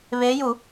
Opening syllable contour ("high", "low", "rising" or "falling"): rising